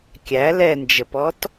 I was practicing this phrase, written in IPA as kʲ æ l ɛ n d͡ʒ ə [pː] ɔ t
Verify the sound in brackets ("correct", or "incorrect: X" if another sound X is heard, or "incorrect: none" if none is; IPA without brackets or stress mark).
incorrect: p